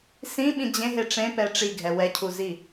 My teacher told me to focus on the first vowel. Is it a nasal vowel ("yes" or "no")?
yes